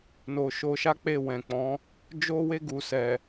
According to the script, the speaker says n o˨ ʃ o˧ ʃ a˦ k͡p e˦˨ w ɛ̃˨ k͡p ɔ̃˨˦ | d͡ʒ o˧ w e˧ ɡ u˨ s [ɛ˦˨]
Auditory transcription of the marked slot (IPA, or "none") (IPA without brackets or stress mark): ɛ˨